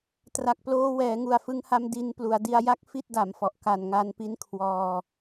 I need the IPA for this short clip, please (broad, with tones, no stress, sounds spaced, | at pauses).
t r a˨˩ k̚ p l oː˧ w ɛː˩˦ ŋ u˨˩ a̯ f ɯ˧ ŋ h a˧ m d i˧ n p l u˩˦ a̯ d i˧ a̯ j a˦˥ k̚ f i˥˩ t̚ d a˩˦ m f ɔ˨˩ ʔ k a˨˩ n ŋ a˧ n p i˦˥ n kʰ w ɔː˧